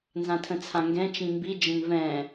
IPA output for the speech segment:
nzãtʰə̃t͡sʰãŋɡɛ̃ t͡ʃĩmbi d͡ʒə̃nvɛ̃

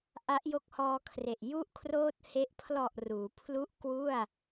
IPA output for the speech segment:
ʔa˦˥ʔjo˦˥k̚hɔː˧kʰre˨˩ʔ ju˥˩ʔkʰroː˥˩t̚ he˦˥ʔ pʰlɔ˨˩ʔ ruː˩˦pʰlu˥˩ʔ kwu˥˩a̯

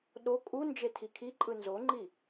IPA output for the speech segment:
ɗo kʼund͡ʒe tʰikʰiǃʼɯ nzoŋ͡ǃi

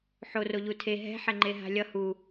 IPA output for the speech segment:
ħoro ʎutʰe ɦɛ̤ħɛŋ͡ǃe ɦa̤lʲʌ hu

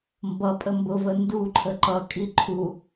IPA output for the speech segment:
mbʌpʼə mbʊvə nduǃʰə ǃʌkʼi ǃʰu

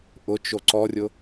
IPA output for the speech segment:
ʔʊt͡ʃo ǀɔrʲʊ

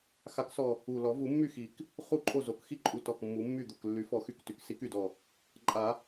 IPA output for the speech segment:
xa˨˩˦ksɔ˨˩ | u˨˩lɔ˨˩˦vu˨˩˦ mːy˥˩xi˨˩˦k | χu˥˩ǃʼo˥˩zo˨˩k xi˥˩ǃʼu˨˩ tɔ˨˩k mːu˨˩˦mːy˥˩d̪o˥˩k lːy˨˩˦fɔ˨˩˦xy˨˩k ty˨˩˦ksi˨˩˦ky˨˩dɔ˨˩ | ǃʼa˨˩˦

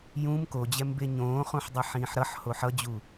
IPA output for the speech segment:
jũm kod͡ʑɛmbe ɲõːχũħdˤʌ ħĩːħɾʌħ hoħʌd͡ʑu

